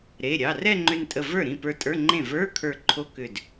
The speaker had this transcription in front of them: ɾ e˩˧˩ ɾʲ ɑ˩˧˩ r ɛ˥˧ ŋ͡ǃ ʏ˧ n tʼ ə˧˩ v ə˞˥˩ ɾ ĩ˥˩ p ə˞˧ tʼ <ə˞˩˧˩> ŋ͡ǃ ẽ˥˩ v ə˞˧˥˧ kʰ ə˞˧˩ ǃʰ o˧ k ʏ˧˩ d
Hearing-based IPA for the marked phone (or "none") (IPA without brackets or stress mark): ə˞˧˥˧